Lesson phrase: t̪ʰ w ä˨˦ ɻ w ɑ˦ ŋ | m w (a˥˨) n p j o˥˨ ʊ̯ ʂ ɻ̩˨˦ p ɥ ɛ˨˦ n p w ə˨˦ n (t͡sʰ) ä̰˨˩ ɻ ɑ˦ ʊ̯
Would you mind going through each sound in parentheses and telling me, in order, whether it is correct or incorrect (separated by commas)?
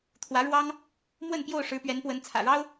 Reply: incorrect, correct